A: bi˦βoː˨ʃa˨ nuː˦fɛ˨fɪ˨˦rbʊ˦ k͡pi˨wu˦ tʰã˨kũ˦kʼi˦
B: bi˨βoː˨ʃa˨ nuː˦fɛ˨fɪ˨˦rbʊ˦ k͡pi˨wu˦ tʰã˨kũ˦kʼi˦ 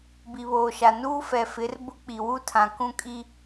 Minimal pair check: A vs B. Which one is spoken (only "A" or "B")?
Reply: B